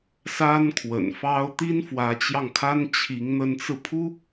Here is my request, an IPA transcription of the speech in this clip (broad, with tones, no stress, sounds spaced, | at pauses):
s a˥ n kʰ w ə̰˨˩ n f ɑ˥ ʊ̯ t̪ i˥ n f w ä˧˥ t͡ɕ j ɑ˧ ŋ kʰ a˥ n t͡ɕʰ i˧˥ ŋ n̪ ə˧˥ n t͡s ɹ̩˧ pʰ u˥